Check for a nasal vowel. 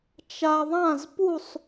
present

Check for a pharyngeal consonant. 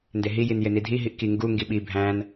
absent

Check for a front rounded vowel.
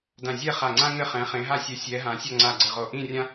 absent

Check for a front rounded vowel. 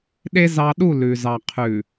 absent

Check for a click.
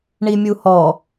absent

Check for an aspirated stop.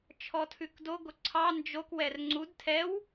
present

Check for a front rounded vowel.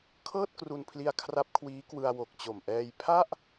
absent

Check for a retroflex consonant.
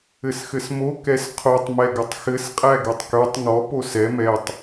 absent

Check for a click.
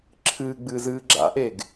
present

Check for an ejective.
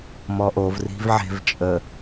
present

